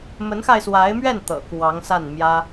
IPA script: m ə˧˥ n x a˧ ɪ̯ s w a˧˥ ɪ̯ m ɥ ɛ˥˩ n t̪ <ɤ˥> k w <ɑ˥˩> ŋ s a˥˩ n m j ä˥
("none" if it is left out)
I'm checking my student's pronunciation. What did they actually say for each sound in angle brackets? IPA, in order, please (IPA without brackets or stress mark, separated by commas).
ɤ̰˨˩, ɑ˧˥